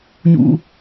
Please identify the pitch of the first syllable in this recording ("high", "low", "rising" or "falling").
high